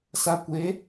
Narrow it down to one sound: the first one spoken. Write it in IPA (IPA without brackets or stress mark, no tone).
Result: s